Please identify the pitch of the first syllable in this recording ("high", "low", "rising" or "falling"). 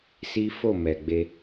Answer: high